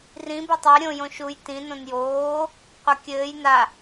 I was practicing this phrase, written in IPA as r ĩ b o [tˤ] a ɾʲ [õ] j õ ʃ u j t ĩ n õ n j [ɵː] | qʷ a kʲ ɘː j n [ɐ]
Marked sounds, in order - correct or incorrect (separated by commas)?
correct, correct, incorrect, incorrect